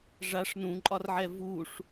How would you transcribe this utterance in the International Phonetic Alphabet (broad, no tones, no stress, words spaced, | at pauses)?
ʐaʂ nũǃʼɒrʕɛ vuʂ